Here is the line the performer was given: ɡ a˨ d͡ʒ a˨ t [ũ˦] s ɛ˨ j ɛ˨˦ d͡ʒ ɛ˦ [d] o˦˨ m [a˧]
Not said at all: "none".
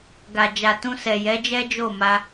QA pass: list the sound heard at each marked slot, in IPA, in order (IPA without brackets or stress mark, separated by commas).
ũ˧, d͡ʒ, a˧